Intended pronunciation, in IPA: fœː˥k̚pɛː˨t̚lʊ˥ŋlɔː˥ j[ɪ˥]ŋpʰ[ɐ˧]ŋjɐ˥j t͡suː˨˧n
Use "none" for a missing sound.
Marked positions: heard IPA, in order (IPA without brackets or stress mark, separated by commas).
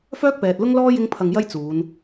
ɪ˥, ɐ˧